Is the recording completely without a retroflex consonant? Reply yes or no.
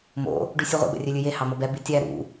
no